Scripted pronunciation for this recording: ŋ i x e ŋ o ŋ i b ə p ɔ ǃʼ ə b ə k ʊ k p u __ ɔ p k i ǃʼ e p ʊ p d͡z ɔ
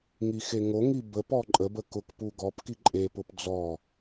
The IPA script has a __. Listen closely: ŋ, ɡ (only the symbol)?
ɡ